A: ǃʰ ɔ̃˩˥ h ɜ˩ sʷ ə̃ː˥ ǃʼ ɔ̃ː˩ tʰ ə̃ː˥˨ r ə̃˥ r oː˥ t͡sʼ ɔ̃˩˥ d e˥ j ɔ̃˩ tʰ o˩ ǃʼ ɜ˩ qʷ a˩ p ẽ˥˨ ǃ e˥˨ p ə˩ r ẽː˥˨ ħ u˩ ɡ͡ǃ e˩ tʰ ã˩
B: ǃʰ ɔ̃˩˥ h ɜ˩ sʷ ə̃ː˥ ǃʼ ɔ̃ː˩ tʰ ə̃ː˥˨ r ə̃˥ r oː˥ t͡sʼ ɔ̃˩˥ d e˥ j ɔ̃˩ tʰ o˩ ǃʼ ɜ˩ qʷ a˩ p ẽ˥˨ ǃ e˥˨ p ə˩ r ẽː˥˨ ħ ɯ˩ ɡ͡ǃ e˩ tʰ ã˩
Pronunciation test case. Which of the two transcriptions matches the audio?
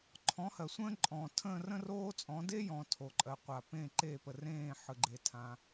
B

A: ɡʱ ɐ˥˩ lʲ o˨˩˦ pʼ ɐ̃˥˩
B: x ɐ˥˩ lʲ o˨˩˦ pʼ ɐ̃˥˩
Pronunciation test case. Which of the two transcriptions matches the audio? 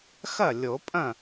B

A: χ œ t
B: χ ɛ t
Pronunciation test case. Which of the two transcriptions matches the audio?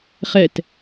B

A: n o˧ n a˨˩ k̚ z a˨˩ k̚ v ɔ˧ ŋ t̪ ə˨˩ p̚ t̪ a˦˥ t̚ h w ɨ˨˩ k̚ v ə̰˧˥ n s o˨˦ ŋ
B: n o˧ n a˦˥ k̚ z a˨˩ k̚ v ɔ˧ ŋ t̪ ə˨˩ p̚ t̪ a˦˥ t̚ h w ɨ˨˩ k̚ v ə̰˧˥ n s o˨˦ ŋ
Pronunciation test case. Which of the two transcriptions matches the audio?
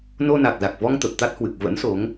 A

